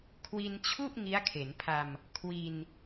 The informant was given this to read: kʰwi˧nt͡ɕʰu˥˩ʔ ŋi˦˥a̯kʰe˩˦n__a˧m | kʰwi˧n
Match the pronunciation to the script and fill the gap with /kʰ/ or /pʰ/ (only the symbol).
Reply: pʰ